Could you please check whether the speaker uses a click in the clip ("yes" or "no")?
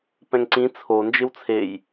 yes